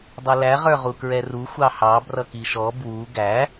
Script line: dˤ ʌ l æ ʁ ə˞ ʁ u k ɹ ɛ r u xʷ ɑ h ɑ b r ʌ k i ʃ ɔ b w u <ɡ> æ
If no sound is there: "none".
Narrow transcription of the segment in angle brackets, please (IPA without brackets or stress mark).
ɡ